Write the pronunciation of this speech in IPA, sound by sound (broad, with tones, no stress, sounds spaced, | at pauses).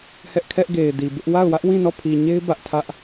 h ɛ˦ ʔ kʰ ɛ˦ ʔ ɡ e˨ ɪ̯ d i˨ b ɪ˦ ʔ w a˦˨ ʊ̯ w ä˦ ʔ w ĩ˦˨ n ɔ˦˨ pʰ i˨ ɲ e˦ ɪ̯ b ä˦ ʔ tʰ ä˦ ʔ